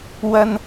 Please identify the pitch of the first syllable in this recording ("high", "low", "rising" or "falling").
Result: high